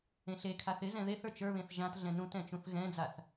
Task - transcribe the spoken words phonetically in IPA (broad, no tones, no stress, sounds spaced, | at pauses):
ẽ ɬ e kʰ a θ ɪ z ɛ̃ ð e θ ə˞ t͡ʃ ə˞ β ẽ θ ʒ ã t ɮ ɛ̃ n ũ t ɛ̃ t͡ʃ ũ θ ɣ ɛ̃ d͡z a θ